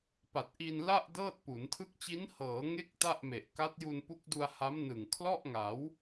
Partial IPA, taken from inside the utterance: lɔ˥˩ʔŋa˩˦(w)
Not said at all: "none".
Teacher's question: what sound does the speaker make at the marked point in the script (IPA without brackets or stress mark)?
w